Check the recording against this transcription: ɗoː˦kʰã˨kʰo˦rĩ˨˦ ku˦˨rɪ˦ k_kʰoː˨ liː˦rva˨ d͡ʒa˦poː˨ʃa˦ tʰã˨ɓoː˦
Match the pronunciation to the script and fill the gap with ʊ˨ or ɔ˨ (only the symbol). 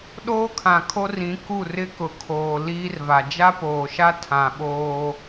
ʊ˨